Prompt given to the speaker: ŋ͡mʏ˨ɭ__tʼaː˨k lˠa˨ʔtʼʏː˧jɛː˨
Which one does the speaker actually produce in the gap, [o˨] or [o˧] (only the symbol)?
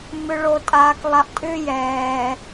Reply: o˨